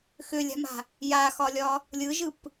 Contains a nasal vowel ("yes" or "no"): no